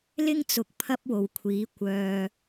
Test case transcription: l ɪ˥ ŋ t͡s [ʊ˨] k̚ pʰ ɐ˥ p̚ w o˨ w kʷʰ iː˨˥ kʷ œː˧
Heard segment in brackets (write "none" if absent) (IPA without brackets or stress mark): ʊ˨˥